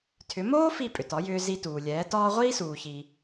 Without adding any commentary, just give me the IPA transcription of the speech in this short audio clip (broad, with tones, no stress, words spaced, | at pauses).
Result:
tʰʏ˩˥moː˥ fi˥˩pʼʏ˩tɒ˩˥jʏː˧ zi˧tuː˩lʲɛː˩˥tɒː˥ ʁʷiː˥suː˩çi˩